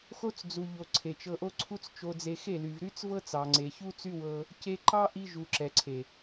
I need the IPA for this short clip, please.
xo˧t͡s d͡zu˨ ʎo˨ ǀʰe˨t͡ʃɤ˧ʔo˦ ǀʰu˦t͡st͡ʃo˧d͡ze˧ xe˦˨ly˨v ɾy˦t͡svɤ˦t͡sɑ˨ ŋ͡ǀe˨çu˦t͡sy˦ wɤ˦ | ce˧ǃɑ˦ʔi˧ ʒu˨ ǁɛ˨ǀʰe˨

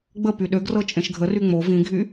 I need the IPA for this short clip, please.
ɡ͡bə pyɗøɡrɤ t͡ʃʼẽʃɡʱəry ŋ͡mo vĩɡʱy

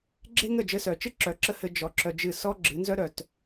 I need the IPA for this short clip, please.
ɡ͡ǁe˦ŋə˦˨ d͡ʒɘ˧sœ˨t͡ʃɨ˦ ǁœ˨ǁə˧ hɘ˧ d͡ʒɔ˧ ǁœ˧d͡ʒɨ˦˨ sɔ˦ ɡ͡ǁɨ˨˦nzœ˦ɾœ˨t

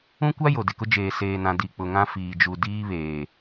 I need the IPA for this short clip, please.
ũ˦kʷa˦ jo˨dɪ˨kʊ˦ d͡ʒeː˨ seː˨nã˨ di˨k͡pʊ˨ŋã˦ fiː˨d͡ʒu˨diː˦βeː˨

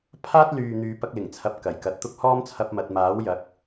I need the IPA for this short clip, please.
pʰaː˥t̚lyː˨ n̪yː˨˧pɐ˧k̚lɪ˨˩ŋt͡sʰɐ˨p̚ kɐ˨˩jkɐ˨t̚t̪ʊ˥k̚ hɔː˥mt͡sʰɐ˧p̚ mɐ˨t̚maː˨˥w jɐ˨˥k̚

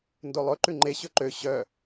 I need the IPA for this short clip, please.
ndolˠɵ ǃʉŋ͡ǃe ɕɵǃø ɕœ

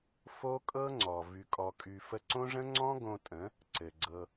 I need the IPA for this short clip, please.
fo˦kʼɤ˦ŋ͡ǀɔ˨ vy˨kʼɔ˨kʼy˨ fə˧ǀõ˦ʐə̃˦ ŋ͡ǀɔ̃˦ ɡõ˧tʼə̃˨˦ | ǀɘ˨ɡ͡ǀɤ˧

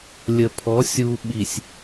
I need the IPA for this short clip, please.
lʲə˨pʰɔ˨˦ sʲu˨ɓi˨sʲ

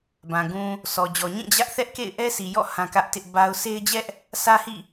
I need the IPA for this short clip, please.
bã˨ ɡũ˨ | sɔ˨d͡ʑɔ˨ɲĩ˦˨ d͡ʑä˦ʔ θɛ˦ʔkḛ˦˨ɪ̯ ʔɛ˦sʰi˨jɔ̰˦˨ hã˦kä˦ʔtɪ˦ʔ ba˦ʊ̯ sʰe˦ɪ̯d͡ʑɛ˦ʔ | sʰä˦hḭ˦˨

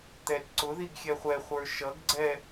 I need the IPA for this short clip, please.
t̪ɛtǀʊðiɡ xʲɛχʷɛχʷə˞ ʃʌɡɡ͡ǀɛ

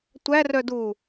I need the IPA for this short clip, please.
tʷærœdu

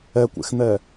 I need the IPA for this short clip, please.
ɛkʷḛxn̪ɛ

